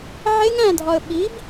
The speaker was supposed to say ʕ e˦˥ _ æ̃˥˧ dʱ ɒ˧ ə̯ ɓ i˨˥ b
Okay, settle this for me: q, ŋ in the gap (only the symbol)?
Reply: ŋ